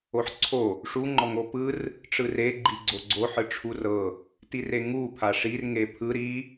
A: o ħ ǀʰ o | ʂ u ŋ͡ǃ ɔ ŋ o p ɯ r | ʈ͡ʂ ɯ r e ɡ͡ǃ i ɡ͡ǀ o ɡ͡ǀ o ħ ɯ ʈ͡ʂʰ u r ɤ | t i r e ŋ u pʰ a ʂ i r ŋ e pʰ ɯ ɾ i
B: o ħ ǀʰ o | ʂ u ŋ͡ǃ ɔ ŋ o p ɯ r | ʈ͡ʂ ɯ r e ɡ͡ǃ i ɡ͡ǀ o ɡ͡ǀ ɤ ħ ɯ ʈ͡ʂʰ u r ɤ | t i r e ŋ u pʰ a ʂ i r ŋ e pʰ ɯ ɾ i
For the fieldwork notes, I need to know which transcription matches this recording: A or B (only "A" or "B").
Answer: A